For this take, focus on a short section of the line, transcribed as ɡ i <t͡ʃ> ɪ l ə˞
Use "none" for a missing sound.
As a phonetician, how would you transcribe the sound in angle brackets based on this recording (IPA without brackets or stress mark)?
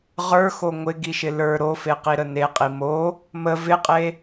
ʃ